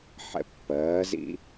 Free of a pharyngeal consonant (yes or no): no